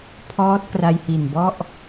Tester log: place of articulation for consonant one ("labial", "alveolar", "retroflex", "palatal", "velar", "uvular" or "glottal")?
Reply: labial